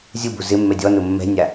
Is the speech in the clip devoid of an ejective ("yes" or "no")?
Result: yes